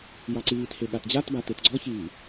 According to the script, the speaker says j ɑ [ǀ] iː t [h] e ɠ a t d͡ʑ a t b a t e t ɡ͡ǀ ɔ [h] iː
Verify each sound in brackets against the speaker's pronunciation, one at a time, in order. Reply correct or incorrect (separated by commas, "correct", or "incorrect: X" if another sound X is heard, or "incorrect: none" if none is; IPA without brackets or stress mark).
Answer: correct, correct, incorrect: ç